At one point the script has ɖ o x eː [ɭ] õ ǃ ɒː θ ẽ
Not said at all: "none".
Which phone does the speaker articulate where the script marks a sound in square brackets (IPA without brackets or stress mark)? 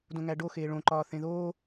ɭ